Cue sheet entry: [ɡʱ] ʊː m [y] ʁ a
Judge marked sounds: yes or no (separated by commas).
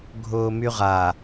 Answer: yes, yes